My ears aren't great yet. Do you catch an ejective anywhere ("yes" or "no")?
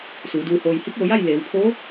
no